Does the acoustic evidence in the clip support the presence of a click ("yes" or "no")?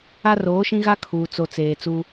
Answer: no